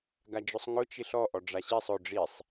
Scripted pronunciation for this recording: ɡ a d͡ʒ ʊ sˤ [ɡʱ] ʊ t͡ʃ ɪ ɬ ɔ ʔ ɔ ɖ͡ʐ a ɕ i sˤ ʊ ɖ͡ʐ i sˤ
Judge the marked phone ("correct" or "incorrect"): incorrect